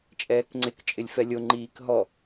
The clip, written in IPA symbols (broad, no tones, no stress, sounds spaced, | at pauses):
t͡ʃʼ ɛː k ŋ͡ǀ ɪ k t͡ʃʼ ɪ lʲ f ɛ lʲ o ŋ͡ǃ iː k ɦ ɔ